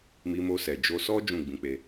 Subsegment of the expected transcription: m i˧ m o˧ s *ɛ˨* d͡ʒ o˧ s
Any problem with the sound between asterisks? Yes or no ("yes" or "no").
no